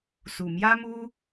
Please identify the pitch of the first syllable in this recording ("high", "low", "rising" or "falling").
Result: low